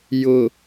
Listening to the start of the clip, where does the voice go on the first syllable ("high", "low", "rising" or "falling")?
low